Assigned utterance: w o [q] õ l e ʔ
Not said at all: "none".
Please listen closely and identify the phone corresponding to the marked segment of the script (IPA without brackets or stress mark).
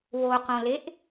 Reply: q